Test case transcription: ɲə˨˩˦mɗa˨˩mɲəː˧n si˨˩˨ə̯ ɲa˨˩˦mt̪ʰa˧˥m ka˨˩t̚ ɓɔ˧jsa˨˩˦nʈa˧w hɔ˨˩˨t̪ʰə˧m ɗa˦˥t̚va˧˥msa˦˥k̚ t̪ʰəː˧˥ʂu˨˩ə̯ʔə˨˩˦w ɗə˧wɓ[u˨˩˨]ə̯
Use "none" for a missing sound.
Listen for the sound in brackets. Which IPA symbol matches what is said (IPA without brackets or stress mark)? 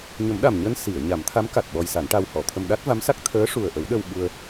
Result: u˧